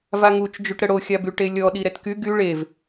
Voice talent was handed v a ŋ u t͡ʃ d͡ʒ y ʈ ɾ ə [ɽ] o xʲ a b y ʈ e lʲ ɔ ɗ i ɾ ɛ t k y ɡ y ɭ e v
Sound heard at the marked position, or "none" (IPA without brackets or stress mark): ɽ